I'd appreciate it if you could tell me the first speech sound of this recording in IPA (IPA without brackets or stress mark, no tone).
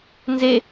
n